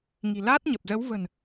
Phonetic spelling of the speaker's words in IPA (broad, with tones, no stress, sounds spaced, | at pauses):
ŋ i̤˨˩ l aː˦˥ t̚ ɲ ə˨˩ p̚ z ə˨˦ w v ə̤˨˩ n